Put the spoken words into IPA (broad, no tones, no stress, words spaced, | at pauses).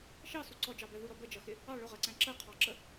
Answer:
ʃɑsu ǀɔd͡ʒɑbɛ ðuɾɔ bəd͡ʒʌxɪ | ɑ ɭʊʁɜǀæ̃ ǁɜqʰɑǁə